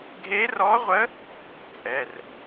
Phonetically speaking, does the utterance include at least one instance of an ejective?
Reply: yes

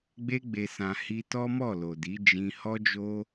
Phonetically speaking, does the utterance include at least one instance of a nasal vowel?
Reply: yes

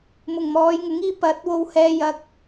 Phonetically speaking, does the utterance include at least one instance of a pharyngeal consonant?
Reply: no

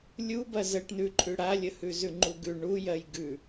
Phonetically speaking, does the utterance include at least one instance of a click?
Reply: yes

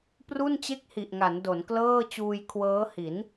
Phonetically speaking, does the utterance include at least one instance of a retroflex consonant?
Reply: no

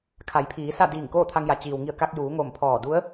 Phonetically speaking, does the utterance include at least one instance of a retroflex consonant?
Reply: no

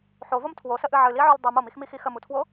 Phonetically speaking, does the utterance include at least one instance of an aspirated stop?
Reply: yes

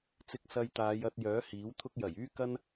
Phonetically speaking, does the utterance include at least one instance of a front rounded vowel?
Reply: yes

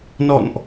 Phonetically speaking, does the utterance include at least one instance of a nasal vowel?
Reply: no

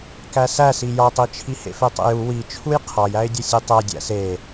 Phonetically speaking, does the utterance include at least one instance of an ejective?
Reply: no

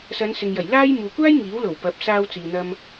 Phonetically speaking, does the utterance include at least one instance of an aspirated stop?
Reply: no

